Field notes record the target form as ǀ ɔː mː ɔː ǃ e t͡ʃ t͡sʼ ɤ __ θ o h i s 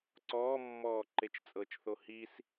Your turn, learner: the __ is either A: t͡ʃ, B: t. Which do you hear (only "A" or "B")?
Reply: A